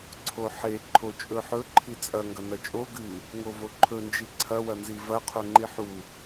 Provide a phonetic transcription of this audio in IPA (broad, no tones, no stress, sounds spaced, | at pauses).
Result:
ǀʰ o ħ e ǃʰ o t͡ʃʼ ɵ ħ ɵ ǃʰ i t͡sʼ ɐ ŋ ɡ ɐ n ɐ t͡ʃʼ o ɡ ɨ | ŋ o v o ǃʰ ɵ n d͡ʒ i ǀʰ ɐ w ɐ n z i v ɐ qʰ o ŋ͡ǃ i ħ u